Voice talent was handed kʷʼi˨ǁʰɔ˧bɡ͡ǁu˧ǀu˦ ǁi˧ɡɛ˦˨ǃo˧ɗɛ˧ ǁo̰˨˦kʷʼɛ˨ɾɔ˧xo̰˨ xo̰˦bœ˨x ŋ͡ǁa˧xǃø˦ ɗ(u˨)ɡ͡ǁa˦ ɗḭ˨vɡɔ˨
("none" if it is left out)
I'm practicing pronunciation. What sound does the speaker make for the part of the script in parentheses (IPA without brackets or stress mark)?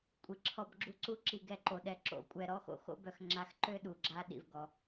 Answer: u˨